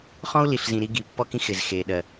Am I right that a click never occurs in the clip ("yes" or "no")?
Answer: yes